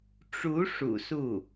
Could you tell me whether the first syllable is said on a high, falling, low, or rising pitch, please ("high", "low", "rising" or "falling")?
rising